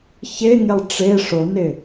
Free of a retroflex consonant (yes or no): no